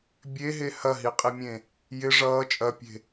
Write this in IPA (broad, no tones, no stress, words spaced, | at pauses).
bʲeɦe hɐɦiqʼimʲẽ | jɪ ʐʌː t͡ʃʼɐpʲe̤